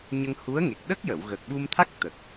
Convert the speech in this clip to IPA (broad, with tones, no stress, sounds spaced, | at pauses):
ɲ ə˧ ŋ h u˧˥ ə̯ ŋ e˨˩ k̚ ɗ ə˦˥ k̚ j ə˨˩˨ w ɣ əː˨˩ k̚ ɓ u˧ m t̪ʰ a˦˥ k̚ t̪ ə˨˩ k̚